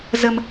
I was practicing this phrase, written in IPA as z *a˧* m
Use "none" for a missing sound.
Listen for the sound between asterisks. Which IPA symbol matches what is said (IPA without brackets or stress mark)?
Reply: ə˧